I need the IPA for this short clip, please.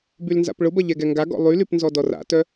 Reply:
b y l n z a̰ p ɭ ʊ b ɐ ʎ ɛ ɡ ɛ ŋ ɡ a ɡ ɔ̰ lˠ y l y p n z ɔ d ɔ r a̰ t œ

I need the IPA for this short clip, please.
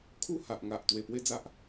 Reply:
kʰ u˦ h a˨ ʔ ŋ a˨ ʔ t̪ w e˨˩ p w e˥˧ d͡z a˦ ʔ

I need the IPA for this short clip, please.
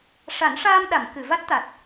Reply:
ʂ a˨˩˦ n ʂ aː˧ m ɗ a˨˩˨ m k ɨ˨˩˨ v a˦˥ t̚ t̪ a˨˩ t̚

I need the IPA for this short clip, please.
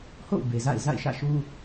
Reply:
h o̰˦˨ ʊ̯ b e˨ z a̰˦˨ ɪ̯ z a̰˦˨ ɪ̯ ʃ ä̰˦˨ ʃ u˦

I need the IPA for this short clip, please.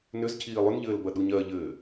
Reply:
n ʏ z cʰ iː lˠ ʏ n ʎ ɘː l b ɐ ɗ u ɲ ɜ ʎ ɘː

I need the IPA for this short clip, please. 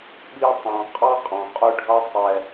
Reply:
ɓ i˦ tˤ ɑ̃˨ qʼ ɑ˦ qʼ ɑ̃˨ qʼ ʊ˦ ɖʱ ʌ˦ sˤ ɛ˦

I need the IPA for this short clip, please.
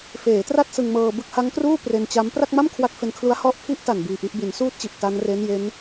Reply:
f eː˩˦ t r a˥˩ t̚ s ɯ˧ ŋ m ɤː˧ b ɯ˦˥ k̚ h a˦˥ ŋ k r uː˥˩ p r e˧ n t͡ɕ a˦˥ m p r a˥˩ k̚ m a˥˩ m kʰ w a˦˥ k̚ f e˧ n kʰ l u˦˥ a̯ h ɔ˦˥ ʔ pʰ i˦˥ ʔ t a˨˩ n b iː˧ ʔ i˦˥ ʔ b i˩˦ n s uː˥˩ t̚ t͡ɕ i˨˩ ʔ t a˦˥ n r e˦˥ n j e˦˥ n

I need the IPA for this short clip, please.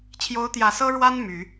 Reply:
t͡ɕʰ j o˧˥ ʊ̯ t̪ j ä˨˩ s ɤ˥ ɻ w a˥ n m y˨˩˦

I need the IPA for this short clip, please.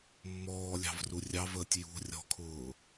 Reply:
mː ɔː lʲ ɑ̤ v r u rʲ ɑ v əː tʲ j ṳ rʲ ɔ̤ kʰ ʊː

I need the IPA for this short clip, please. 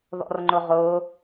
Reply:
ð ɔ̰ r ŋ͡ǃ ʊ ʁ ʊː

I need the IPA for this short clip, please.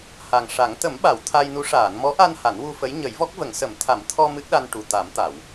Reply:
h a˨˩ ŋ ʂ a˨˩˦ ŋ t̪ ə˨˩˦ m ɓ a˨˩˨ w t̪ʰ a˧ j n u˧˥ ʂ aː˨˩˨ n m ɔ˧˥ ʔ a˧ n h a˨˩˦ n w u˧ f ə˧˥ j ɲ ə˨˩˦ j v ɔ˦˥ k̚ v ə˨˩˦ ŋ s ə˨˩˦ m t̪ʰ a˨˩˦ m t̪ʰ ɔ˧ m ɨ˦˥ k̚ ɗ a˧ n ʈ u˨˩ t̪ a˨˩˦ m t̪ a˨˩˨ w

